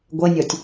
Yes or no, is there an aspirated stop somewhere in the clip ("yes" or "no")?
no